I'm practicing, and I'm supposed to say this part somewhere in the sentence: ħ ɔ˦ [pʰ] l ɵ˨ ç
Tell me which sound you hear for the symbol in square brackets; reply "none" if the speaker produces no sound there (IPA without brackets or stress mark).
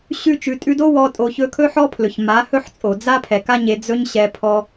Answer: pʰ